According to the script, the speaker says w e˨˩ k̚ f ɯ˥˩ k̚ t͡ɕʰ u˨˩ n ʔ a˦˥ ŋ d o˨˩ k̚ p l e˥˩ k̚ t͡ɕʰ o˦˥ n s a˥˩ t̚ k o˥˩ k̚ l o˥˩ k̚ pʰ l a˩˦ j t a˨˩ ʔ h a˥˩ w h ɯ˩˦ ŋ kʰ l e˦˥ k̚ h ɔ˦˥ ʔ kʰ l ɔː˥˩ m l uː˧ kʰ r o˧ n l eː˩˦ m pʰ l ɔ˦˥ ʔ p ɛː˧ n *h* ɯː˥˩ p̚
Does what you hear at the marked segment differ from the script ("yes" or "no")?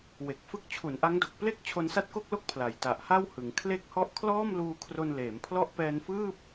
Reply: yes